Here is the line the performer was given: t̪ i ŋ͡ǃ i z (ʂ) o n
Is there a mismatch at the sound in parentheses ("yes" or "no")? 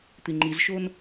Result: yes